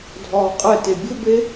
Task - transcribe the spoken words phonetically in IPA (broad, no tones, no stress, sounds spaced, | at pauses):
dʱ ɒː qʼ ɛ t e bʲ ʊ b e